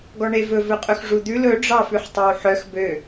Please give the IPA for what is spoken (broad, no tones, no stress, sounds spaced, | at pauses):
ɡ ɔ ɳ e v ɵ v ɵ qʼ ɵ x ʐ u d̪ ʉ l ɵ ɖ͡ʐ ɑ f ʉ ħ tˤ e w ħ œ x b ø